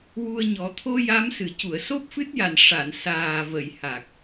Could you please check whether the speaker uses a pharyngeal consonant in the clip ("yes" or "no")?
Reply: no